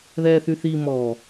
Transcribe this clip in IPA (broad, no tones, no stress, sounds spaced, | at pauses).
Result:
ð ɛː θ y θ i m ɔ